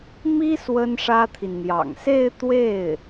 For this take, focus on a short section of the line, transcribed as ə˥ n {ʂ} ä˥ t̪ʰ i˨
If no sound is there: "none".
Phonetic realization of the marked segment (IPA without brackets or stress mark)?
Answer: ʂ